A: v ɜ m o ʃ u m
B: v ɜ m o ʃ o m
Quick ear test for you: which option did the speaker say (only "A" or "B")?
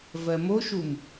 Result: A